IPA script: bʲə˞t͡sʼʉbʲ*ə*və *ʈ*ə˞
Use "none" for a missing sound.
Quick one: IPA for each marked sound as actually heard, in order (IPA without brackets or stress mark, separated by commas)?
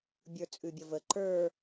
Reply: ə, ǃ